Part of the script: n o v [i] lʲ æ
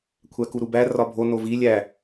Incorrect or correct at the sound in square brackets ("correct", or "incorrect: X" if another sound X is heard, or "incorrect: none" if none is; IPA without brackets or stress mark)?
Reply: correct